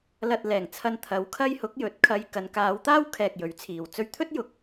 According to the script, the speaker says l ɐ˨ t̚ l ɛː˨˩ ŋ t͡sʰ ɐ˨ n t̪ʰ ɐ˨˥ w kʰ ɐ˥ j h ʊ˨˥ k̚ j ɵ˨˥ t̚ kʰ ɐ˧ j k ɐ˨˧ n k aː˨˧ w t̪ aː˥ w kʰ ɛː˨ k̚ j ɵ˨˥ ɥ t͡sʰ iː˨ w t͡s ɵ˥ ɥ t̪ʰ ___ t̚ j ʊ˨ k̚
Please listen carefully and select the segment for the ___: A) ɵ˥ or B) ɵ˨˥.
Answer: A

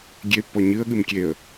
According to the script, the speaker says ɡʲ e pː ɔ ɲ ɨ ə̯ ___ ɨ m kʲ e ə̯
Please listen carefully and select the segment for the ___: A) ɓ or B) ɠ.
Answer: B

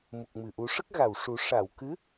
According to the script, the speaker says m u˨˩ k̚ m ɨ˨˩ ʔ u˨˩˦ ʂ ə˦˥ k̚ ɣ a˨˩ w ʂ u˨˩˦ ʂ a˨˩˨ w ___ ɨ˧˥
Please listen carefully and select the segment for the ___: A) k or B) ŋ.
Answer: A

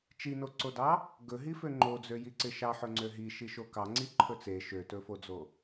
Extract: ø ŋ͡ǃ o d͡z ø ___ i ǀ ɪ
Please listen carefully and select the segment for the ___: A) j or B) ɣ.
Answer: A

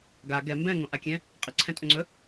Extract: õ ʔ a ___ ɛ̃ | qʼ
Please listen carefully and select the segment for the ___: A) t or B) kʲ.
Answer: B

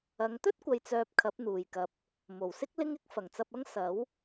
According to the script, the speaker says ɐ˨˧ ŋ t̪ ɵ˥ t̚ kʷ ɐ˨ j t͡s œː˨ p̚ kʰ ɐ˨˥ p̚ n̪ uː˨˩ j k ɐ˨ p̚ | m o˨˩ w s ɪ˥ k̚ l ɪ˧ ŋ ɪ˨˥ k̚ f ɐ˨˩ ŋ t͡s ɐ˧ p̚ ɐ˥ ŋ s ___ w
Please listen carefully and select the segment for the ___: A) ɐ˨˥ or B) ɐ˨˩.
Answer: A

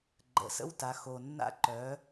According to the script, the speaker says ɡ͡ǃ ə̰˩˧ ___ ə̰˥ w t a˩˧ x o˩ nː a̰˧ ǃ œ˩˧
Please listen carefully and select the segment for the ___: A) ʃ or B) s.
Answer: B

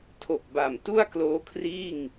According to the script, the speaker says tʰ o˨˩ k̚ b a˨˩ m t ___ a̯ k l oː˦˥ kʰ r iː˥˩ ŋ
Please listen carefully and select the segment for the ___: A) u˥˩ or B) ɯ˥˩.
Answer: A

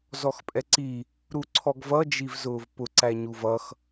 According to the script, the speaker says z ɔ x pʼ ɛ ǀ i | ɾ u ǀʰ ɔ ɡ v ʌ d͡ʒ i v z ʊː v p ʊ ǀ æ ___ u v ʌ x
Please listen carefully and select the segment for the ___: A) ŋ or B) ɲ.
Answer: B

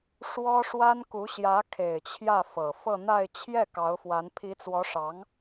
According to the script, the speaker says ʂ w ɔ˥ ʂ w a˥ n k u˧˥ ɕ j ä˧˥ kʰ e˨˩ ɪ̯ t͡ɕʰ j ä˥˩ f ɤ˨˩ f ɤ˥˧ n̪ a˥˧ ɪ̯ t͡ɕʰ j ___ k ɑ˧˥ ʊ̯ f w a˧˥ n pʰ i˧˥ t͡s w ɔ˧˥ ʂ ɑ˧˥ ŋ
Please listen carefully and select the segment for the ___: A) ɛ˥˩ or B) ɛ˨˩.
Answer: A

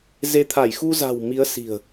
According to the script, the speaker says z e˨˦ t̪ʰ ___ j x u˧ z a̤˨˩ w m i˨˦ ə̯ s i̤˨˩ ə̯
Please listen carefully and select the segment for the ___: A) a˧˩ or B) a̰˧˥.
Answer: A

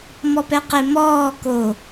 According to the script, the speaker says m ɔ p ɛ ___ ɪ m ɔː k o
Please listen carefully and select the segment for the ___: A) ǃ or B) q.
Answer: B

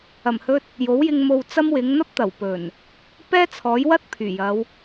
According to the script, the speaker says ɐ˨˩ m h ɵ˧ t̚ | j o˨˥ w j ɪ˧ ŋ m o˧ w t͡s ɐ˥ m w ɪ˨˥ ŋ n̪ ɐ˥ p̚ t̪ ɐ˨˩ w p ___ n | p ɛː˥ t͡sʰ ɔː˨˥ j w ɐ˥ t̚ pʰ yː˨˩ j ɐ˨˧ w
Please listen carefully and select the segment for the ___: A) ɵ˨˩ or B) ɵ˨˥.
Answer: A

